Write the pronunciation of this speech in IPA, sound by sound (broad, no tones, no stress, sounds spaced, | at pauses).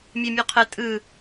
mʲ e mʲ u qʰ ə tʼ ɯ